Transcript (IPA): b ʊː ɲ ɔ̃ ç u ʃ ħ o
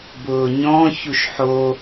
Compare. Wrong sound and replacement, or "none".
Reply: none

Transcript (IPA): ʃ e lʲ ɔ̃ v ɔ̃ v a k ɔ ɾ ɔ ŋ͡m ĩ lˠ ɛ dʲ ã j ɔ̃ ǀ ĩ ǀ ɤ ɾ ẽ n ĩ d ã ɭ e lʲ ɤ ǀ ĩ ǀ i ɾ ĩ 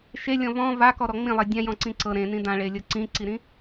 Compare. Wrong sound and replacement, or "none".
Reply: none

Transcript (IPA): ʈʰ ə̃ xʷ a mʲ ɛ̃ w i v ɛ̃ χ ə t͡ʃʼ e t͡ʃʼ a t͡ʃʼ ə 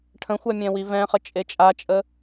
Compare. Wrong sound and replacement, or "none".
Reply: none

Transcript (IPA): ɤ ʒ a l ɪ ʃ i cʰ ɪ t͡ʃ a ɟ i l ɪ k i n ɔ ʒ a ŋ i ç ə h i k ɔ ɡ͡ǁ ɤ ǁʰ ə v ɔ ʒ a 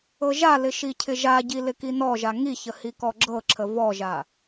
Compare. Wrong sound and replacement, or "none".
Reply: t͡ʃ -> ʒ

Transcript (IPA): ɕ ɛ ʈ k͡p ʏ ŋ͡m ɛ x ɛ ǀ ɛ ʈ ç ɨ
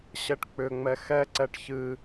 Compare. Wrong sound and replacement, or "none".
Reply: none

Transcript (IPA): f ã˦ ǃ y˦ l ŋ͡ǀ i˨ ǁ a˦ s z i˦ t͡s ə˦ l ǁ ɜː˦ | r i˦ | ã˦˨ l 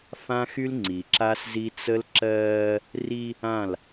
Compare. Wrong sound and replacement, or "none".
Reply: ǃ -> x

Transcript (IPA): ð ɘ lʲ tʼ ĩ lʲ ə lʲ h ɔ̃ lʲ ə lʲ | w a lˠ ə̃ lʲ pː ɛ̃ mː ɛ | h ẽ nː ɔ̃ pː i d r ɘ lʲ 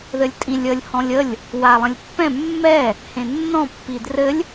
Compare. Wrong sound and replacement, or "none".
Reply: none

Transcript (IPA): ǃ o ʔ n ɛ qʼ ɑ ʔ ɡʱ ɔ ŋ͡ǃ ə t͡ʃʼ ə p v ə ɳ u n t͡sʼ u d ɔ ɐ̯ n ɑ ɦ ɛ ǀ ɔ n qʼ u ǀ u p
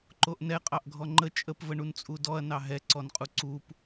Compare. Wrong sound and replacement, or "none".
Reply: none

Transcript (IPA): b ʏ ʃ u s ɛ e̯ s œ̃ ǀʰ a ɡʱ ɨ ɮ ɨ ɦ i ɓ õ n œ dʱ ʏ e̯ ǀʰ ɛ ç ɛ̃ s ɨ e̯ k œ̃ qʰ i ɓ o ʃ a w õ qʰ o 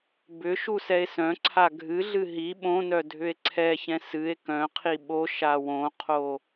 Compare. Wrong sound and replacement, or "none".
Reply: none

